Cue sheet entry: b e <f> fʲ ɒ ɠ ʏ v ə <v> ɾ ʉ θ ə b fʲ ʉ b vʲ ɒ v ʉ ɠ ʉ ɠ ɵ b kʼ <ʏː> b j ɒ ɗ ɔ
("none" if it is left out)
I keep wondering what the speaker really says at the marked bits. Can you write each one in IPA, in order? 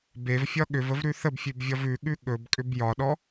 v, v, ʏ

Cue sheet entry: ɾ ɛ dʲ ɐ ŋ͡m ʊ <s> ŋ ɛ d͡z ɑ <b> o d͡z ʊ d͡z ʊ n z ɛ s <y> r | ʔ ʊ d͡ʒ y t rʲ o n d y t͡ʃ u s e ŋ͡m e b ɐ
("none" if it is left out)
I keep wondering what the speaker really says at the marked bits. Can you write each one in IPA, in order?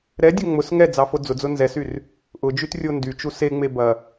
s, f, y

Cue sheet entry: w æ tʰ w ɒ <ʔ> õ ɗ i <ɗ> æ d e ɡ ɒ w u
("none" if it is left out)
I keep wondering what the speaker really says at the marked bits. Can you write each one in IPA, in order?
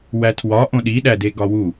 ʔ, ɗ

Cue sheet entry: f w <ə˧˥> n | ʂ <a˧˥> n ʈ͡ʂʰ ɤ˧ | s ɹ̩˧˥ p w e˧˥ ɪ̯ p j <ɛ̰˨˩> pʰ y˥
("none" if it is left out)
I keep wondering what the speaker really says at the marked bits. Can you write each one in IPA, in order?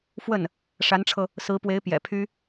ə˥˩, a˧˥, ɛ̰˨˩

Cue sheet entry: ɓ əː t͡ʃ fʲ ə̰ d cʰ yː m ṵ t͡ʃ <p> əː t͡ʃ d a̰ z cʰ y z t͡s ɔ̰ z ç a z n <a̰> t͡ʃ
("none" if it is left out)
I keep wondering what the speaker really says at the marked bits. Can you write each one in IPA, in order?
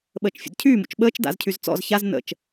ɓ, ə̰

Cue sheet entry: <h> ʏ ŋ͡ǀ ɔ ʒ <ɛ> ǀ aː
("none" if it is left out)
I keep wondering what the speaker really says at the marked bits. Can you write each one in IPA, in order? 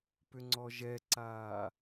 p, ɛ

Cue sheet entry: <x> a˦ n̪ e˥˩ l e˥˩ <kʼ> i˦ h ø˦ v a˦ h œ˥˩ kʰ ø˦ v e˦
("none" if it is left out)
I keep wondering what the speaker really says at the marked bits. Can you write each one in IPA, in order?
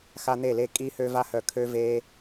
x, kʼ

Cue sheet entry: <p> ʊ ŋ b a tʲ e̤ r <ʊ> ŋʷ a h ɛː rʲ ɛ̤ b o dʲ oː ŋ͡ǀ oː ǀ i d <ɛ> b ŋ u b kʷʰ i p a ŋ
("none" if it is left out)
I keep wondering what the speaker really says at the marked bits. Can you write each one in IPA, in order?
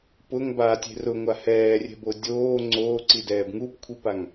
p, ʊ, ɛː

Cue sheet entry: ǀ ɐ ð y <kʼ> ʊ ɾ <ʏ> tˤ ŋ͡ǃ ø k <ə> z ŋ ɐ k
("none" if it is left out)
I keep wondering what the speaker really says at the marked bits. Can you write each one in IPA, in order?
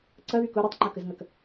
k, ʏ, ə

